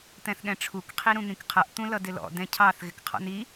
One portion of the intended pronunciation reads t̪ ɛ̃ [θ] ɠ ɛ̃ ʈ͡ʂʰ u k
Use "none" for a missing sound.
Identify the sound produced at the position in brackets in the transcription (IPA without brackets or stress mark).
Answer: θ